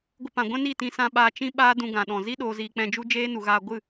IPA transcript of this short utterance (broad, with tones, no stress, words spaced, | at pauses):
ɡʷə˧pã˨ɡʷɛ̃˦ni˦˨ tĩ˧sã˧ɓaː˧ t͡ʃĩ˦ ɓaː˦dũ˧ɡã˨ɗɔ̃˨ zi˦ ɗoː˧ziː˧ k͡pɛ̃˧d͡ʒu˦ d͡ʒeː˦nu˨ɣaː˧ ɡʷɨ˦˨